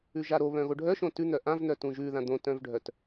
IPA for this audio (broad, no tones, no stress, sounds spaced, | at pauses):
ʉ ʒ a ɾ o β œ̃ ɣ o ɖʱ œ ʃ õ t ʉ n̪ œ ʔ ã v n̪ œ t ũ ʒ ʉ ð ã d̪ õ t œ̃ v ɖʱ œ t